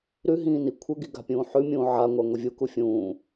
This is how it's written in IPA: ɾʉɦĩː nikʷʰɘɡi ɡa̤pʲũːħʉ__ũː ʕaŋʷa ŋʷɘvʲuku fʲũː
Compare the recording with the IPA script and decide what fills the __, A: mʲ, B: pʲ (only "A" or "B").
A